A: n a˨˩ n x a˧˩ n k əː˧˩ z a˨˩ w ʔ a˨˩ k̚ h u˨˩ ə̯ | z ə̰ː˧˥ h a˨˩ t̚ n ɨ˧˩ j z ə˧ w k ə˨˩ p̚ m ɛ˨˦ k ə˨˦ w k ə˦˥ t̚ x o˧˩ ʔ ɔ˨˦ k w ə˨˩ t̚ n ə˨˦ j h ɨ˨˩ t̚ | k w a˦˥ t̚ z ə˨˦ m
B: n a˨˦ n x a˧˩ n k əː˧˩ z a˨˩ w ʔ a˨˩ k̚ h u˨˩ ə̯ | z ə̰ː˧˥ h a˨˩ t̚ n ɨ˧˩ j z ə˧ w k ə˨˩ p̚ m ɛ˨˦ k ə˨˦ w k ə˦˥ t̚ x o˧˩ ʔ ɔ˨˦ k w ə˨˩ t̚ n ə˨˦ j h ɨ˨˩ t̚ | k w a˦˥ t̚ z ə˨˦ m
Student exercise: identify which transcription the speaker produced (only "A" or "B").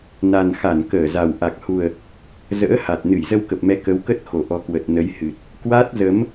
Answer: A